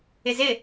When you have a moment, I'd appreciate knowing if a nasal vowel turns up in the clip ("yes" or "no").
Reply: no